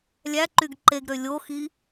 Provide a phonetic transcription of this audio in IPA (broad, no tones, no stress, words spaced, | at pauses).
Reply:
lʲæǃyɡ ǃeɡɾø lʲoxi